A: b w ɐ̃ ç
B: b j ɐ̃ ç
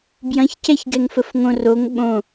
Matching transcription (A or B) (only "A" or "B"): B